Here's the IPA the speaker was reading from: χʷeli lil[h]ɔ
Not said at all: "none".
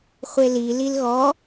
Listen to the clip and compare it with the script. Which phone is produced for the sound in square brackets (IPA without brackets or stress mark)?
ɣ